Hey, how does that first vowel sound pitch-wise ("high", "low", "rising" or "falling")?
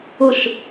falling